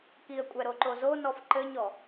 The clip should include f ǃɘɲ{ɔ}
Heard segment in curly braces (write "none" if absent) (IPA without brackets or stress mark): ɔ